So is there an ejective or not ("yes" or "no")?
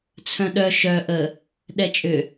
yes